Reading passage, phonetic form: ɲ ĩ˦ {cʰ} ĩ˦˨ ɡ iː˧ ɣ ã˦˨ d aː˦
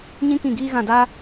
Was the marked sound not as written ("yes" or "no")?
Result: yes